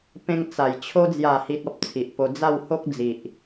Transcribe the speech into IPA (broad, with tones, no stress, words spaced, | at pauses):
pẽ˧ŋt͡sa˨˩j t͡ɕʰo˧d͡zja˨˩hi˨t̚ ɔ˦p̚t͡sʰi˨ʔpo˧ d͡za˥˧who˦k̚d͡zi˨ʔ